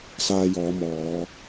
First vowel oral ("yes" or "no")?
yes